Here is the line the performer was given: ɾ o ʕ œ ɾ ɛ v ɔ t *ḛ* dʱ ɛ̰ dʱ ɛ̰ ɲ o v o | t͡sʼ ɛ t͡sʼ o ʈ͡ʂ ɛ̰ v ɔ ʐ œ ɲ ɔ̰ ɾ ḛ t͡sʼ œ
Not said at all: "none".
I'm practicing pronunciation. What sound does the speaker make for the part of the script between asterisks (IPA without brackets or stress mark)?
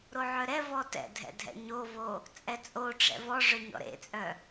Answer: ɛ̰